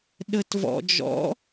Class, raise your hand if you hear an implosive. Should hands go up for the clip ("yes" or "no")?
yes